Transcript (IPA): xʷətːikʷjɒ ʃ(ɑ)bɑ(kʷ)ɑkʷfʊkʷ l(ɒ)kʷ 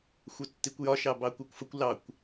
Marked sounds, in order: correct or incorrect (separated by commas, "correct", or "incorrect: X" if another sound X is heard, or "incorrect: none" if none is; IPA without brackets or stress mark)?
correct, correct, incorrect: ɑ